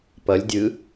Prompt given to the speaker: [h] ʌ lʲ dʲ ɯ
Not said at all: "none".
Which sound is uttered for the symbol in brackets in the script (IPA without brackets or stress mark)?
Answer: p